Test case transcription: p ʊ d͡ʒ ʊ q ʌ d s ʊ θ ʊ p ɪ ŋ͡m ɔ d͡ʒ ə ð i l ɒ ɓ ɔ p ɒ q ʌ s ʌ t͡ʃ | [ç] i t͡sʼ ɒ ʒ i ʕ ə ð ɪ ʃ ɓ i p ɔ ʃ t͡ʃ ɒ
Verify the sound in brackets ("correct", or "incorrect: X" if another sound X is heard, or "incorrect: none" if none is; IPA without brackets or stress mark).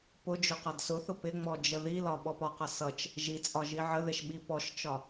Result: incorrect: ʒ